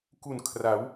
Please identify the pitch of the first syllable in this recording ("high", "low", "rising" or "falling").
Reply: low